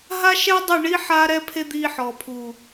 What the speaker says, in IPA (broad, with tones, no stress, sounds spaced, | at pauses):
ɦ a˦ ʃ ɛ˦ dˤ o˦˨ ɳ i˦ ħ a˦ ɾ ɛ˦ pʰ e˦ d̪ iː˧ ħ ɔ˨ pʰ u˨